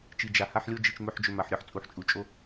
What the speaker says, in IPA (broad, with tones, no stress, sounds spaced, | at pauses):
t͡ʃ i˨ d͡ʒ a˨ h a˦ ħ lʲ o˦ d͡ʒ i˨ t͡ʃ m ɵ˨ ħ d͡ʒ ɵ˨ m a˨ ħ ɾʲ ɔ˦ ħ t͡sʼ u˨ ħ t͡ʃʼ u˨ t͡ʃʼ o˦